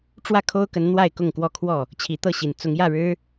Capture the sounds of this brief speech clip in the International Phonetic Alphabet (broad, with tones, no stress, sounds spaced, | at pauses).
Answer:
ʈ͡ʂ w ä˥˨ kʰ o˦ ʊ̯ k ə˨˦ n n̪ w a˥˨ ɪ̯ k ʊ˥˨ ŋ k w ɔ˥˨ kʰ w ɔ˥˨ | t͡ɕʰ i˨˦ t̪ ɤ˥˨ ɕ i˨˩ n t͡s ʊ˨˦ ŋ j ä˥˨ ɻ ɻ̩˦